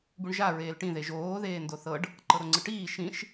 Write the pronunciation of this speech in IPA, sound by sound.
b u ɳ ʒ a ɹ eː l ʈ ĩ ð e ʒ oː ð eː n d o θ ɤ ɖ | ǃ ɤ ɾ o ŋ͡ǀ ɯ ʈ iː ʃ ĩ ʃ

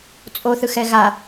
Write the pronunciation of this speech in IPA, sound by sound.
t͡sʼ o θ ɯ x ɛ ɣ a

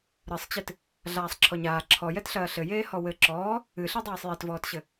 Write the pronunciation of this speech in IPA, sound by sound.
ɾ ɨ sˤ t͡ɕ ɨ t | ɮ aː sˤ ǁʰ ɔ ɲ aː ǁʰ ɔ j ɛ t ɬ ɐː ɬ ɘ j eː h ɔ w ɘ ǁ ɔː | ɨ ɬ i dˤ iː sˤ j e t v ɔː t ɕ ɘ

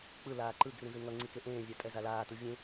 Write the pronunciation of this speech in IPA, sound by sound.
k͡p ɯ l aː ǃ ɯ ɡ r ĩ z ɯ ŋ ʌ ŋ͡ǀ i k e ʔ ẽː vʲ a tʼ ɛ z a l aː t u vʲ ẽ

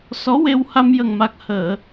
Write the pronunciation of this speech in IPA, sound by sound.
s ɔ˧˥ w e˧ w h a˧ m j ə˨˩ ŋ m a˨˩ k̚ h əː˨˩˨

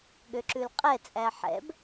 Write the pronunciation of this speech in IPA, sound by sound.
ɠ ø ǁ ʉ l qʼ ɛ t͡sʼ æ ħ ɛ̰ b

